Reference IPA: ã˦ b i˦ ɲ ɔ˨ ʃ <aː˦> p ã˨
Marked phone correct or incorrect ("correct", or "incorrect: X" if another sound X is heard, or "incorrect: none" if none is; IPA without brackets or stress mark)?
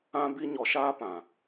correct